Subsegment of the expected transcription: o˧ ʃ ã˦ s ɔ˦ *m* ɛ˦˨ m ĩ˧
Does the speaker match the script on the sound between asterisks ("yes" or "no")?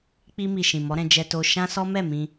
yes